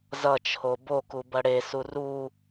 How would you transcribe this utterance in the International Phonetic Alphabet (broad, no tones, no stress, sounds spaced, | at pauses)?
z ʌ t͡ʃʰ o b o k u b ʌ ɽ e s u r u